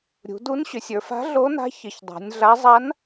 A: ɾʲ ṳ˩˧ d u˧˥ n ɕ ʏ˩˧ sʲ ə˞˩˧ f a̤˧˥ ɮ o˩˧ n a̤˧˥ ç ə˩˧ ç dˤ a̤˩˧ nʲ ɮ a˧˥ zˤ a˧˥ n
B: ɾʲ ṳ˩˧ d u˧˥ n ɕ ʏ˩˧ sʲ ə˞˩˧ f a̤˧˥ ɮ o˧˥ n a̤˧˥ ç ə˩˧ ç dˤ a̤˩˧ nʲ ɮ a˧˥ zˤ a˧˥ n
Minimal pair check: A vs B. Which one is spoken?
B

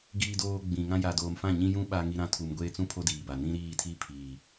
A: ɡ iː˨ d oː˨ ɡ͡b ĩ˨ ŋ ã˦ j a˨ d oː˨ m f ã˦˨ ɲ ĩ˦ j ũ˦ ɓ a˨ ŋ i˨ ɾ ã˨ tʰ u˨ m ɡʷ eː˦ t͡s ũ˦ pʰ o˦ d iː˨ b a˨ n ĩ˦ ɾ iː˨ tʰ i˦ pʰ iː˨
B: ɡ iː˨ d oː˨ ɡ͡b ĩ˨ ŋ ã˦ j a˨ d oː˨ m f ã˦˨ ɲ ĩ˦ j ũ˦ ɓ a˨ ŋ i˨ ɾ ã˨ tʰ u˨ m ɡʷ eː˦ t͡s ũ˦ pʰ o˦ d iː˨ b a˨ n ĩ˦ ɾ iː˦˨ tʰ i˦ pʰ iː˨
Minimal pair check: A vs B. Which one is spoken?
B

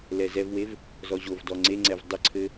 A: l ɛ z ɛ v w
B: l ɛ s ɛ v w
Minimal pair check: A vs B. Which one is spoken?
A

